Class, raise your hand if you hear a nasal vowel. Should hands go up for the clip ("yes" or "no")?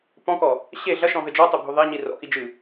yes